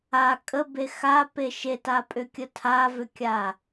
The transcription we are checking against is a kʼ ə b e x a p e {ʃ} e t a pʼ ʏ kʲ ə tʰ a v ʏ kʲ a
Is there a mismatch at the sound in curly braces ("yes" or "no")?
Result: no